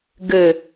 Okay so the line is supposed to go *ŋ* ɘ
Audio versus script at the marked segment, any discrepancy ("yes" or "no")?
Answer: yes